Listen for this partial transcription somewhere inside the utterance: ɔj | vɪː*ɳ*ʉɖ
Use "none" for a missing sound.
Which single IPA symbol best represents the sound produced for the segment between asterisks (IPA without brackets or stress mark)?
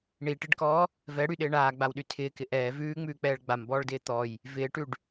ʈ